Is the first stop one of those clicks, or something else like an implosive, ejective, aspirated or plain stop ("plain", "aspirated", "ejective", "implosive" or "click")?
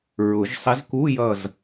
plain